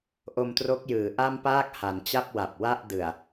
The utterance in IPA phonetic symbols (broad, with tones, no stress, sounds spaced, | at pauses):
ʔ o˧ m t r o˦˥ k̚ j ɯː˩˦ ʔ a˥˩ m p aː˥˩ k̚ h a˩˦ n t͡ɕ a˥˩ p̚ w a˨˩ p̚ w a˥˩ ʔ d ɯ˨˩ a̯